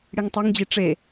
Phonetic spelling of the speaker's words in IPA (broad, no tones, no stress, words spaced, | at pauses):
ɽiŋtˤeŋd͡ʑi ʈ͡ʂe